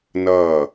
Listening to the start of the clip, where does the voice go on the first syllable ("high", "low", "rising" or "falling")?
falling